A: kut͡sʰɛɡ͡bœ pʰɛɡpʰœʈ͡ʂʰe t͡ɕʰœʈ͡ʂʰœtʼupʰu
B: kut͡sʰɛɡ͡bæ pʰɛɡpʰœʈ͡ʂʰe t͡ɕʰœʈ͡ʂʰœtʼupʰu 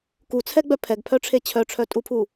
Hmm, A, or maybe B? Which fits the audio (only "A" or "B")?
A